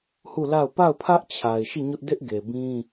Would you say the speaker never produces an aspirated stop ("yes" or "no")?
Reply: no